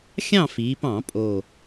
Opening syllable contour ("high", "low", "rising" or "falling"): falling